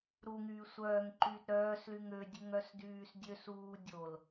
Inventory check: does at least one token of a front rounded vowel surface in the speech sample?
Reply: yes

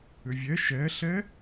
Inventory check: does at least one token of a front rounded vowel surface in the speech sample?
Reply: yes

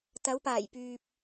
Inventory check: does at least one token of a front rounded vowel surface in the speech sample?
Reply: yes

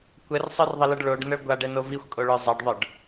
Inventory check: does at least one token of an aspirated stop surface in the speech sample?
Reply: no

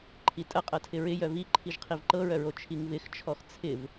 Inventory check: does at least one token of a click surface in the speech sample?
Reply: yes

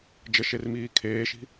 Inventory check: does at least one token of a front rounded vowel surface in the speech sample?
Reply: no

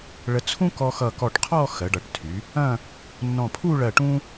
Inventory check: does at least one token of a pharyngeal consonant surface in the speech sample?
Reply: no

